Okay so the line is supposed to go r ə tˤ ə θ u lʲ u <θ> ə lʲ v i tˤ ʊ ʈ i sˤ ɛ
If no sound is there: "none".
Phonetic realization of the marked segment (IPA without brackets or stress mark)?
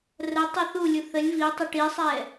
θ